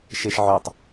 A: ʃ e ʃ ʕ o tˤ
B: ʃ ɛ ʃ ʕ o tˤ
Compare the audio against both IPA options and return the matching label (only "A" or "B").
A